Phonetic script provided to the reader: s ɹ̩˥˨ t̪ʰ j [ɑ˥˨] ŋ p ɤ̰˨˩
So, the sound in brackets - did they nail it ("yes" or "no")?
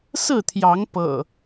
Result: no